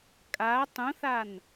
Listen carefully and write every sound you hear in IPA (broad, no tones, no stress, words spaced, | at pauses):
kʼa tˤũθan